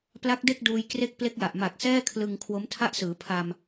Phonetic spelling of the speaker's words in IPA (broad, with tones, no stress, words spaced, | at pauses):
pla˦˥k̚de˥˩k̚duː˧j kre˦˥k̚ple˦˥k̚ ja˨˩ʔ ma˨˩k̚sɛː˥˩kʰlɯ˧ŋ kʰwo˦˥mtʰa˥˩ʔsɯː˩˦ pʰa˧m